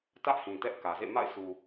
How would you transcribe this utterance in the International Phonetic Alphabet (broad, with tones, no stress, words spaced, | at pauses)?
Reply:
tä˦ʔhĩ˨ tɛ˦ʔkä˨zḛ˦˨ ma̰˦˨ɪ̯sʰu˨